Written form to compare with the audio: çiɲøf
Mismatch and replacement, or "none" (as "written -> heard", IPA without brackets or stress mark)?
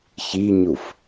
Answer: ø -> u